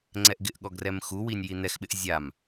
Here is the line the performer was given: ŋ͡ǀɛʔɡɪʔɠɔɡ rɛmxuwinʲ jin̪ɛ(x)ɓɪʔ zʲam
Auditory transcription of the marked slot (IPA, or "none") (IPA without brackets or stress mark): x